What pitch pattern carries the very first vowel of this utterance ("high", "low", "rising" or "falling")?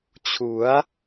rising